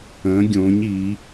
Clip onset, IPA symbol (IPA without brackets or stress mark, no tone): ə̃ː